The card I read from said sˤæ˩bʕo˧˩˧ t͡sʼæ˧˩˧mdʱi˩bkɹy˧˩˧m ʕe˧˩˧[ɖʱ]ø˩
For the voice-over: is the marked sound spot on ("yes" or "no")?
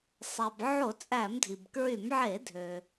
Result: no